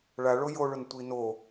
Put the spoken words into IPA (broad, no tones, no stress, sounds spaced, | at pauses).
ɭ a ɭ o j o ɭ ʊ n tʷ i n o